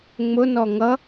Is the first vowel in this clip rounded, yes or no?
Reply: yes